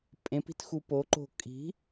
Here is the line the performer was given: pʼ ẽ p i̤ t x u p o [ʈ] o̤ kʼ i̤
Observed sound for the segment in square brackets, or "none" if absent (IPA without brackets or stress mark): ǃ